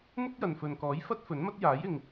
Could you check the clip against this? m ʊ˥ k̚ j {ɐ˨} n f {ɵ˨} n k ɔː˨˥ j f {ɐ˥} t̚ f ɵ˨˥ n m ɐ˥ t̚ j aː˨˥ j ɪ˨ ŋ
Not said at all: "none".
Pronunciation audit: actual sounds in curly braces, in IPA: ɐ˨, ɵ˨, ɐ˥

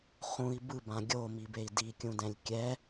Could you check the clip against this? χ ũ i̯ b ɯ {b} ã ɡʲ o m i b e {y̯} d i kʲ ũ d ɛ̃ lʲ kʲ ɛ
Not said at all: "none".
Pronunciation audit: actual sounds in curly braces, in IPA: b, i̯

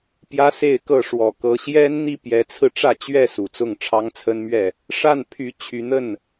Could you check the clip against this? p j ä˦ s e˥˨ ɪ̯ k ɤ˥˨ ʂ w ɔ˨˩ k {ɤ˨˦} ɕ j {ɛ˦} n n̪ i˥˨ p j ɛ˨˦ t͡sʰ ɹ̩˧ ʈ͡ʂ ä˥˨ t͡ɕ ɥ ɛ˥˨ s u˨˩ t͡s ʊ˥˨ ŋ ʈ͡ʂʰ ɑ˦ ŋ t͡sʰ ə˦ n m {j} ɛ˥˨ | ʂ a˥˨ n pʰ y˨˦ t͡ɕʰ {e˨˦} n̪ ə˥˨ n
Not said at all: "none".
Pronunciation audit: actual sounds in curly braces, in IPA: ɤ˨˦, ɛ˦, ɥ, y˨˦

